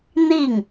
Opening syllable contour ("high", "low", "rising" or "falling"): falling